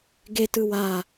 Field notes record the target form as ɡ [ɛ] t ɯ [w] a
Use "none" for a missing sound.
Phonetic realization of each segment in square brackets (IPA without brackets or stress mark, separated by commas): e, w